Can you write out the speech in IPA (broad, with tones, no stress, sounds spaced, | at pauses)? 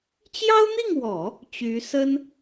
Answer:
t͡ɕ j ɑ˥ ʊ̯ n̪ i˥˩ ŋ w ɔ˨˩˦ | t͡ɕ y˧˥ s ə˥ n